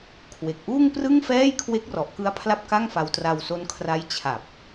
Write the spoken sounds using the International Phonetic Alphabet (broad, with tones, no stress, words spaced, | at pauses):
kʰwe˨˩k̚ʔuː˥˩ŋprɯ˥˩ŋfɛː˥˩j kʰwe˦˥k̚rɔ˨˩ʔkɯ˦˥a̯ pʰla˥˩p̚ka˥˩ŋfa˧w tra˧wso˦˥nkʰra˦˥j t͡ɕʰa˨˩p̚